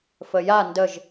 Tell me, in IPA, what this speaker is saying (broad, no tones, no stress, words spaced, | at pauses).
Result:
fəja ndəʒ